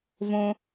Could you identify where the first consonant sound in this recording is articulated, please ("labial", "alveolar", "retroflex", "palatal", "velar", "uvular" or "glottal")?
labial